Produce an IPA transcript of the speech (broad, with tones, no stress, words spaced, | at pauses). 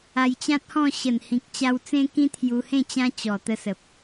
a˧jt͡ɕã˦t̚hɔ̃˥˧ ɕə˨˩nhĩ˨k̚t͡ɕa˧w t͡sẽ˦kĩ˦t̪ʰju˧hẽ˥˧ t͡ɕã˦t͡ɕɔ˨˩ t̪ə˧sə˨p̚